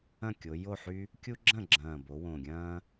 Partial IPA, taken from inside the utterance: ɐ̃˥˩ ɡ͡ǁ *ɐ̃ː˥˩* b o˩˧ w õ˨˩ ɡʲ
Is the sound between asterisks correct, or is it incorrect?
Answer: incorrect